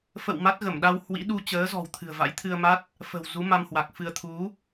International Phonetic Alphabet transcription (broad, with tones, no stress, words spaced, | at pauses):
fə̰˧˨w ma˦˥t̚ɣə˧˩mɗa˧w hwḭ˧˥ɗu˧ t͡ɕəː˨˦zɔ̤˨˩w t̪ʰɨ̤˨˩ə̯va̰˧˥jt̪ʰɨ˧ə̯ ma˦˥t̚ | fə̤˨˩w zu˨˦ma˧mhwa˨˩k̚fɨ˧ə̯ t̪ʰu˨˦